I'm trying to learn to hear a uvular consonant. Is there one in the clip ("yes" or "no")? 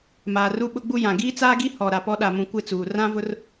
no